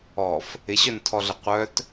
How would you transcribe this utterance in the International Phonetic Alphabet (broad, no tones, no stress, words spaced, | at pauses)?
ɔf | ɪɕœntʰɔɮə qʷœt